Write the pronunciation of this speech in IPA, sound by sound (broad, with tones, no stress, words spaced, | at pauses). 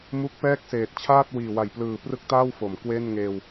mu˦˥k̚pɛː˥˩k̚seː˨˩t̚ t͡ɕʰaː˥˩t̚wiː˨˩wa˨˩jplɯː˨˩ prɯ˥˩k̚taː˥˩wfo˩˦m kweː˥˩nŋeː˧w